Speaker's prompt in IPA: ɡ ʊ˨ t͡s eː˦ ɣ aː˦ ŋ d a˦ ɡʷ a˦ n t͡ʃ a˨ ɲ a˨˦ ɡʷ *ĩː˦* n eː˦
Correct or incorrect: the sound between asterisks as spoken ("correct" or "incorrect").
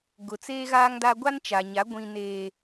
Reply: incorrect